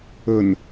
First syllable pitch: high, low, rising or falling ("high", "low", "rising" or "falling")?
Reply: low